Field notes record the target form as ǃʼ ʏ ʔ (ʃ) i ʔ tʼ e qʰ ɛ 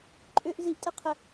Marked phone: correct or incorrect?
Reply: incorrect